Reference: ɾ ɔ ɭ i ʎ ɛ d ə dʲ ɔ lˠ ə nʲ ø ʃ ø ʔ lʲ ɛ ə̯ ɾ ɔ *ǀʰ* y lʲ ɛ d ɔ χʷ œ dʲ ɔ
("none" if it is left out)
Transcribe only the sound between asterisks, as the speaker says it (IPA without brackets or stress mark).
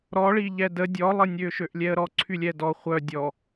ǀʰ